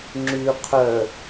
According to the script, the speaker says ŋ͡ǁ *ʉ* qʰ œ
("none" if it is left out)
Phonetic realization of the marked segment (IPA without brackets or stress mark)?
ʉ